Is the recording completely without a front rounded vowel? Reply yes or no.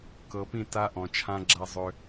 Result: no